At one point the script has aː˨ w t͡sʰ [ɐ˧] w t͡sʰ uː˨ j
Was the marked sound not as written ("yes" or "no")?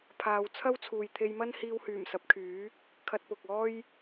yes